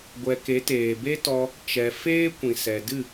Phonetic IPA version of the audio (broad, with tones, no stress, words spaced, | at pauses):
ɡʷɛ˨ ke˨˦teː˨be˦tɔ˧ | t͡ʃɛ˨ feː˦ kʷĩ˨sɛ˨dɨ˦˨